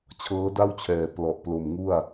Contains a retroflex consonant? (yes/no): no